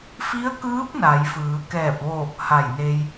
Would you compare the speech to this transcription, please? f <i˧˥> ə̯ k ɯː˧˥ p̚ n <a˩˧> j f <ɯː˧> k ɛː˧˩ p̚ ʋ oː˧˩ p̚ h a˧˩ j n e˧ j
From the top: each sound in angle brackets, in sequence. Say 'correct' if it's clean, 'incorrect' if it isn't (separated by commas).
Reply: correct, correct, incorrect